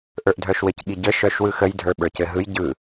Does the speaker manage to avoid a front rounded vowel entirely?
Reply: no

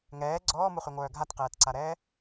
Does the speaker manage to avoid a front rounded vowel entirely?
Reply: no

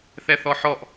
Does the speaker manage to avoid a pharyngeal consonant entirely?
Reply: no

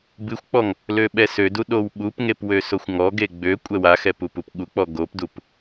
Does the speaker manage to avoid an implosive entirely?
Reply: no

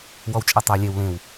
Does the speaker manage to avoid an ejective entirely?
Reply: no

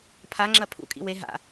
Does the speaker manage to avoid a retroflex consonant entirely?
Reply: yes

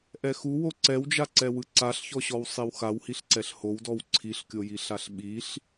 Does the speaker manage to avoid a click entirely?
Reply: no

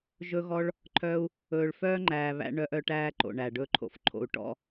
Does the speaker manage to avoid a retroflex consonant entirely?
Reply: no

